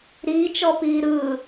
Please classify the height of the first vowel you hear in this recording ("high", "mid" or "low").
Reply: high